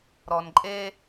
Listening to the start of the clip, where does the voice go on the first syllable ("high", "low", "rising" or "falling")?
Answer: low